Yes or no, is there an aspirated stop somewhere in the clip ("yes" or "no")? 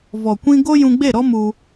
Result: no